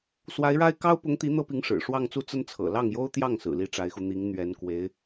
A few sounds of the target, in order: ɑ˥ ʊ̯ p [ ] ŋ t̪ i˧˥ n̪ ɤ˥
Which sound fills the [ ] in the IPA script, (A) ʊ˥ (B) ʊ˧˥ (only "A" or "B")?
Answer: B